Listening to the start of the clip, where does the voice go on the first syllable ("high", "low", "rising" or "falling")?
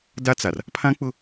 high